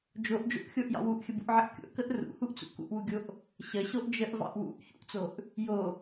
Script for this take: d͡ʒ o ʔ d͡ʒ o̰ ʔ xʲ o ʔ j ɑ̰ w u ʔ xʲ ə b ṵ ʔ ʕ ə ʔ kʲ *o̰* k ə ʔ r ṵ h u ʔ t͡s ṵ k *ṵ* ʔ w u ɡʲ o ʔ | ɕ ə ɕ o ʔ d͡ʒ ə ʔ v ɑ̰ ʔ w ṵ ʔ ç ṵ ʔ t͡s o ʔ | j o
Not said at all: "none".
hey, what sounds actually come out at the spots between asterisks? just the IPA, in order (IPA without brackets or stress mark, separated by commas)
o̰, ṵ